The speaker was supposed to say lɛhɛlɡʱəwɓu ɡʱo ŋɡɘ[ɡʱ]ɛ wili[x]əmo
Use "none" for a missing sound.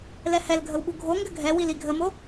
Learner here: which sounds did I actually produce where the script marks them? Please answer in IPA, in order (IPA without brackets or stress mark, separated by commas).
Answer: ɡʱ, ɡʱ